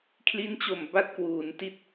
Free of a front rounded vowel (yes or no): yes